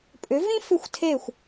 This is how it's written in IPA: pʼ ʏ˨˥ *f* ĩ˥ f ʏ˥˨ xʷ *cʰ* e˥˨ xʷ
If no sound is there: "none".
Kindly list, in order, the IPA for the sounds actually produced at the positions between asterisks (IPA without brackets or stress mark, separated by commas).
v, tʰ